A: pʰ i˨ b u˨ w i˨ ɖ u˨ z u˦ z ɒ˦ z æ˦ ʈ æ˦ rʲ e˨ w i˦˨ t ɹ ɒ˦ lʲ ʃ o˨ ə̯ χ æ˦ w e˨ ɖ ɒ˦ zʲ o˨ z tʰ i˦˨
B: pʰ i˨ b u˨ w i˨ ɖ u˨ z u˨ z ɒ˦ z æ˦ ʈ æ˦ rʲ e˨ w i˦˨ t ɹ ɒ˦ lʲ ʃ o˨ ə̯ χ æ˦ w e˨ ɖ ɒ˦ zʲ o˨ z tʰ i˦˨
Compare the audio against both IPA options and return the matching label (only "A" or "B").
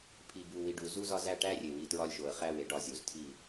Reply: A